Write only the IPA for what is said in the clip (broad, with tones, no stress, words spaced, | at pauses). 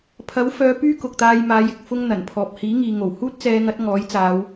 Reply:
pʰɐ˨˥wfœː˨˧ pyː˥kʊ˨k̚t̪aː˧j maː˨˧jɪ˨k̚ fʊ˥ŋn̪ɐ˨˩npʰɔː˨p̚ hiː˨˥ŋiː˨ŋo˨˩w huː˥t̚t͡sɛː˨˧ŋɐ˨˥t̚ ŋɔː˨˥jt͡saː˨˧w